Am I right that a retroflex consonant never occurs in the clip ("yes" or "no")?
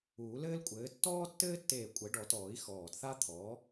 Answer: no